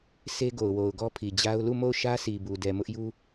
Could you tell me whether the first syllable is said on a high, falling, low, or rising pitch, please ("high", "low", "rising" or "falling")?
high